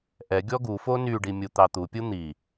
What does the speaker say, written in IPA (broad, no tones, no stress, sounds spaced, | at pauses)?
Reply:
ʔ ɛ ɡʲ ɔ ɡ u f o n y ɖ i mʲ u t̪ ɑ t̪ u pʲ u n̪ i